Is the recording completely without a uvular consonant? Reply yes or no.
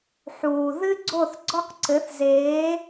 no